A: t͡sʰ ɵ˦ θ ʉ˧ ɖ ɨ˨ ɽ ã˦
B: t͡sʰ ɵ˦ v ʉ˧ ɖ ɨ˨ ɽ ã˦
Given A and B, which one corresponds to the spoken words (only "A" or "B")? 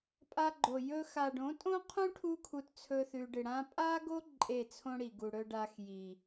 A